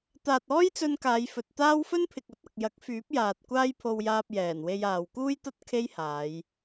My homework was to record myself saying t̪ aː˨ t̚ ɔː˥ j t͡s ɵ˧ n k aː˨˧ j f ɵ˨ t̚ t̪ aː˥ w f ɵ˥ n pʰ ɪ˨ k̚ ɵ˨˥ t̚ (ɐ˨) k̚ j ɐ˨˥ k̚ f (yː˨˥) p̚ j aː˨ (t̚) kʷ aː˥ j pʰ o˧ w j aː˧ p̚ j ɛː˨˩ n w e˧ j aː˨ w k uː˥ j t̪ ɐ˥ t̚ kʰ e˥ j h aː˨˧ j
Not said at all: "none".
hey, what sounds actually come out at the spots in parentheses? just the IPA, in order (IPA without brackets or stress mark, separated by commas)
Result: ɐ˨, yː˨˥, t̚